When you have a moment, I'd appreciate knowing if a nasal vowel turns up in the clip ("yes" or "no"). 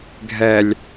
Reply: no